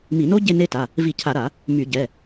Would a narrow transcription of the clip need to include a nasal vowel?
no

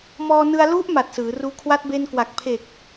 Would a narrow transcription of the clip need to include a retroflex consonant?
no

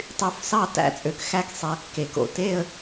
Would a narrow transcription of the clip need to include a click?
no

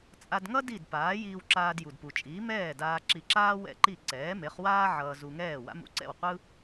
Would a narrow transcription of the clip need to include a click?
yes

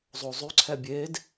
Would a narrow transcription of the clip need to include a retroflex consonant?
no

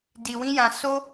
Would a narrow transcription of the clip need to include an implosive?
no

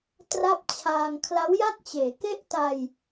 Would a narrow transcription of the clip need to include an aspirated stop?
yes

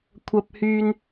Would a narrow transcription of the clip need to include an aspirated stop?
yes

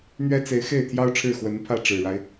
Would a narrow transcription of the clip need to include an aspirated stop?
yes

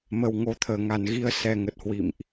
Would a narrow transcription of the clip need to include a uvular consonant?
no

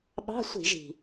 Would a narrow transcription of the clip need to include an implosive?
yes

